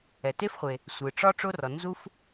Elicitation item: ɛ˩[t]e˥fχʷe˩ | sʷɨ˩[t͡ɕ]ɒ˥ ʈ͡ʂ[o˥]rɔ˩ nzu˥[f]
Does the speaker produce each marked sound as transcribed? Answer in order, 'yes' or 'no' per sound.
yes, no, yes, yes

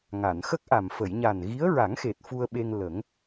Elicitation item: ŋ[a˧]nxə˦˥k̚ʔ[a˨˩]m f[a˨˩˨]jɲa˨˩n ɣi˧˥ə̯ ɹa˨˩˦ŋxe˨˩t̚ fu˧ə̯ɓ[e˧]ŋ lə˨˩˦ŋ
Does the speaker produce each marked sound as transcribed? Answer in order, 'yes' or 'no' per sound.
no, yes, no, yes

